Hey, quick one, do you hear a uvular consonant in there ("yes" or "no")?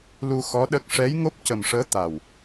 no